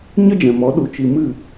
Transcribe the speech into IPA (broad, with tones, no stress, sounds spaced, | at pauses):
ɲ ə˦ d͡ʒ ɛ̃˨ m ɔ˨˦ ɗ u˨ t͡ʃ i˨ m ɨ˦˨